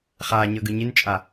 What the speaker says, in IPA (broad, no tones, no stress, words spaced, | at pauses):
χaːɲɤɡɯ ɲint͡ʃʼa